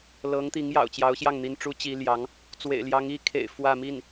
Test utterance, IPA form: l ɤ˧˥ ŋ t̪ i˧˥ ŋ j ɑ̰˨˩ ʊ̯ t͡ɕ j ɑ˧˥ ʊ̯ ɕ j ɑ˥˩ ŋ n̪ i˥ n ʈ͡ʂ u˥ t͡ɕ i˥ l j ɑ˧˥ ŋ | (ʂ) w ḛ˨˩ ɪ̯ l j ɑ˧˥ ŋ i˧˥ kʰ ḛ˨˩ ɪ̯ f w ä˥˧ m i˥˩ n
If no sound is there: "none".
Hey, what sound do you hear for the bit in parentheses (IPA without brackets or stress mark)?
t͡s